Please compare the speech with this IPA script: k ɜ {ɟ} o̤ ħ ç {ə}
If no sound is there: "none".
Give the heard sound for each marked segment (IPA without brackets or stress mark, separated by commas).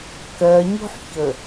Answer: ɲ, ə